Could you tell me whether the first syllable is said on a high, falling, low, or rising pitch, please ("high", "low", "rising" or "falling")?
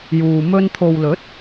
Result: low